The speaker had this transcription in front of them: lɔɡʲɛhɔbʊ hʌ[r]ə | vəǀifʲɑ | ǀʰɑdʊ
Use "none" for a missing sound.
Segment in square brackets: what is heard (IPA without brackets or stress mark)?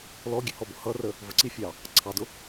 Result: r